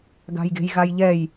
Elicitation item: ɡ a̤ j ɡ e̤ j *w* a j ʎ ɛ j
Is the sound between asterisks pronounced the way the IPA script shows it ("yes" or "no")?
no